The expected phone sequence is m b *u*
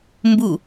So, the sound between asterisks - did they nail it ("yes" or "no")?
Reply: yes